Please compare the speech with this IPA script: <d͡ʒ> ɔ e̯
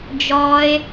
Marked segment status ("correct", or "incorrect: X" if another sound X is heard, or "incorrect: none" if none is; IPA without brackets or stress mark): correct